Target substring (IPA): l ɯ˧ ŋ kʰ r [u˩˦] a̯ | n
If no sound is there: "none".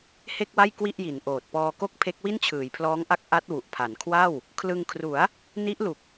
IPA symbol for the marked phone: u˩˦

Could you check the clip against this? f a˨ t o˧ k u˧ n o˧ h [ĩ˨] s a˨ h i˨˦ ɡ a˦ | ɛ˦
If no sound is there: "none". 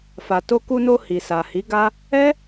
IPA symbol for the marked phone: i˨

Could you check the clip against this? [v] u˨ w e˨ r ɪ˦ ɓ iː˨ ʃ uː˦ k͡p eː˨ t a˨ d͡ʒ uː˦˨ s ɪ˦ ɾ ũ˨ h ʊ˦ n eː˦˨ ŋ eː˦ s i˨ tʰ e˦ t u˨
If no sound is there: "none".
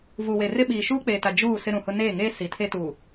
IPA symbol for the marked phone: v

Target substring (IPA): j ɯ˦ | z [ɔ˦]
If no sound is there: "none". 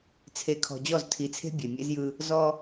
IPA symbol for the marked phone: ɔ˦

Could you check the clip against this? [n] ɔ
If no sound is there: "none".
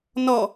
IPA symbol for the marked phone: n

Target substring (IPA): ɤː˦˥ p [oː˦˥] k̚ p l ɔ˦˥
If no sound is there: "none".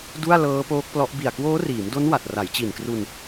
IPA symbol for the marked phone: oː˦˥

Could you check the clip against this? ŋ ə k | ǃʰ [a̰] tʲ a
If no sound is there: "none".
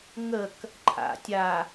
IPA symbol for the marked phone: a̰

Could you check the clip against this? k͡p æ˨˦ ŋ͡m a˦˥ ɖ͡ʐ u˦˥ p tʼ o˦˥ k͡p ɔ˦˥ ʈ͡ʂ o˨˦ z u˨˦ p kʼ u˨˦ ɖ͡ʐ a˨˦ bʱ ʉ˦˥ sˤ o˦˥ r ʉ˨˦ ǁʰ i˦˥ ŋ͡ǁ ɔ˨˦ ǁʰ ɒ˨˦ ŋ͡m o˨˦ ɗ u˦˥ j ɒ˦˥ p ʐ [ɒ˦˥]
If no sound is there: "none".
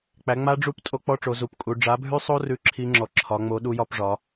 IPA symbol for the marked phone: ɒ˨˦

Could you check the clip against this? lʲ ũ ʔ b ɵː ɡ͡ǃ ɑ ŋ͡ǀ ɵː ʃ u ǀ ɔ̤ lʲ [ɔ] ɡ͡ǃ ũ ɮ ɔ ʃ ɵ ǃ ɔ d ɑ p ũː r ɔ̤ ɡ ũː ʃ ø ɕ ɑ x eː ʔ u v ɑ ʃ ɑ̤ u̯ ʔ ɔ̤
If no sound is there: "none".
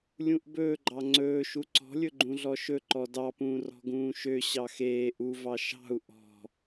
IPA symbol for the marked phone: ɵ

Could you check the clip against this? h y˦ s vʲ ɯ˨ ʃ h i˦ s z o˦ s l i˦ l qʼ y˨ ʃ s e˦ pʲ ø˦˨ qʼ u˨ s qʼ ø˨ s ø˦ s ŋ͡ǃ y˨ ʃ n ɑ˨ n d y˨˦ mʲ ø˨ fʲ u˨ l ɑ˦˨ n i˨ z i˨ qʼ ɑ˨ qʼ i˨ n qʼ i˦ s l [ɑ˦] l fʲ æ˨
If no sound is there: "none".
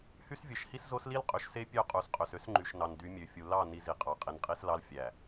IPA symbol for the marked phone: ɑ˦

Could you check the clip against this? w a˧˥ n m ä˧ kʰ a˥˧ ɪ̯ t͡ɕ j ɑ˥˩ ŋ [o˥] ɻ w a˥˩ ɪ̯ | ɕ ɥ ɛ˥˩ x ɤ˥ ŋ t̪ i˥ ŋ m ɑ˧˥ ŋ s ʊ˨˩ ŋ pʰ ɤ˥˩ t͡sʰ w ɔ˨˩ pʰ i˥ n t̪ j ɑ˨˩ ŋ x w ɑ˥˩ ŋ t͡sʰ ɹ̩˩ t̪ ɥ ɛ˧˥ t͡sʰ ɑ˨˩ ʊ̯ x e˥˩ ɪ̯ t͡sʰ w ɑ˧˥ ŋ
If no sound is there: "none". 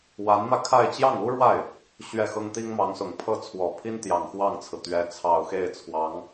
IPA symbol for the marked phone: u˥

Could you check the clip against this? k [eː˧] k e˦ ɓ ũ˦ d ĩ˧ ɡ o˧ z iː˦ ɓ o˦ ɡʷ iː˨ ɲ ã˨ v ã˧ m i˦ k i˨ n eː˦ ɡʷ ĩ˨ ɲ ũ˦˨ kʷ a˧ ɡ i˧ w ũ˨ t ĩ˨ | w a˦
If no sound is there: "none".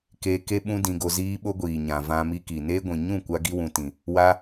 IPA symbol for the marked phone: eː˧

